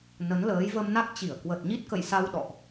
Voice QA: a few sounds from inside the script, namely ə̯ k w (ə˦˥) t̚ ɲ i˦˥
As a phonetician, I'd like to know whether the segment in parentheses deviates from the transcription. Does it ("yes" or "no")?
yes